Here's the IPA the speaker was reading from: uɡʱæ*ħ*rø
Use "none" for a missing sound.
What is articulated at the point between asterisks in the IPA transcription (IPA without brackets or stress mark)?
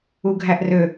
ʔ